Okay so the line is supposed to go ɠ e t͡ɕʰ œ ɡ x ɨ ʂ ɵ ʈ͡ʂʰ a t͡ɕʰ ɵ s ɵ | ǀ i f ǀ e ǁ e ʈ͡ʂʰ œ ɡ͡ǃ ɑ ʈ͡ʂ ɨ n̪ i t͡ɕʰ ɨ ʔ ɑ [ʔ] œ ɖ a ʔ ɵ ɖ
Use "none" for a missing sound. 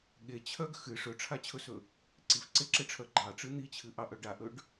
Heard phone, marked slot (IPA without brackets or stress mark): ʔ